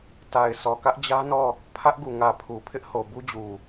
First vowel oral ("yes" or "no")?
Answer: yes